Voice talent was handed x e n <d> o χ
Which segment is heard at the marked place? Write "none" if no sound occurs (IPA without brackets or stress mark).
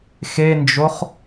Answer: d͡ʒ